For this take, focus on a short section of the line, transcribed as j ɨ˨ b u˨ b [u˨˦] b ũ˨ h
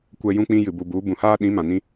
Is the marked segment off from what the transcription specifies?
no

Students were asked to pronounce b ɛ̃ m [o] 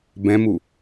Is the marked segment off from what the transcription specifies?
yes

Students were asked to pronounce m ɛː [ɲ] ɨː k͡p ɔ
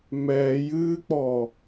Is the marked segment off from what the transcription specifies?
yes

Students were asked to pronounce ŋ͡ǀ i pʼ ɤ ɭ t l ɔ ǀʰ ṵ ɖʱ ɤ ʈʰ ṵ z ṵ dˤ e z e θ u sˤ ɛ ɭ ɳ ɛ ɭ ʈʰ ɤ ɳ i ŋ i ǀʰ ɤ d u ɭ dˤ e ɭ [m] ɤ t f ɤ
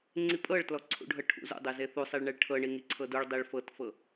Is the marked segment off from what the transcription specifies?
yes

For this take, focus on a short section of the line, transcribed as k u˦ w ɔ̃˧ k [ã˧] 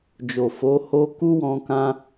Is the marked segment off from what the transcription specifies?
no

